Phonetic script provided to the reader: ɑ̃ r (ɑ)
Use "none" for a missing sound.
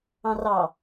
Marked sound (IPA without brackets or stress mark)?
ɑ